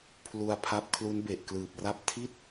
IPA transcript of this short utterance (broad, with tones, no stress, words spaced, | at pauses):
pʰlu˧a̯pʰa˦˥p̚ kʰlu˦˥nbe˨˩ʔklɯː˨˩p̚ra˥˩p̚ tʰi˥˩t̚